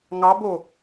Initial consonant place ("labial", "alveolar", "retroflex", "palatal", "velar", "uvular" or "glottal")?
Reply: velar